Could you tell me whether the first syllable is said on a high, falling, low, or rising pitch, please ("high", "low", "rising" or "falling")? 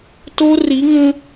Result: high